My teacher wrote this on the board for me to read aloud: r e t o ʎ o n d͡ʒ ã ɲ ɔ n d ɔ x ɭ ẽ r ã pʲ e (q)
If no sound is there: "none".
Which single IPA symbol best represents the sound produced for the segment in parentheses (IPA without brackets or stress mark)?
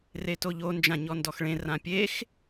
x